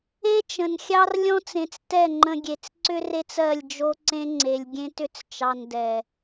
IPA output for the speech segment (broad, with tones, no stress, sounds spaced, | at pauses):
e˦ t͡ʃ ə̃˨ n xʲ ɑ˦ r lʲ ɔ̃˦ t͡s ẽ˨ t͡s t ɛ˦˨ ŋ͡ǃ ə̃˧ ɡʲ e˧ t͡s ǀ ʏ˦ r e˦ t͡s ɜ˦˨ lʲ d͡ʒ o˦ ǀ ẽ˦ ŋ͡ǀ e˨ lʲ ɡʲ ẽ˦ t ʏ˦ t͡s t͡ʃ ɑ˧ n d ɛ˨